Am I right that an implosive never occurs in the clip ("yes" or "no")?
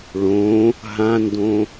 yes